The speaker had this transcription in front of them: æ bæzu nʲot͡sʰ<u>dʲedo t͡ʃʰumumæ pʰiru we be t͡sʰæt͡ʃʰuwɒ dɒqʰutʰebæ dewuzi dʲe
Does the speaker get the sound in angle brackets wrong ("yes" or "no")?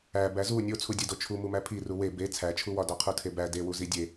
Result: no